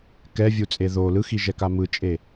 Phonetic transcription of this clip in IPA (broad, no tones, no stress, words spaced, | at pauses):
kɛvʲut͡sʼe ðo lɯxiʒɛka mɯt͡ʃʼe